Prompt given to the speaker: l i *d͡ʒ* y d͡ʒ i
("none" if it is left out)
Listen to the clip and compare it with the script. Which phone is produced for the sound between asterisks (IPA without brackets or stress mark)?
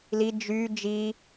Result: d͡ʒ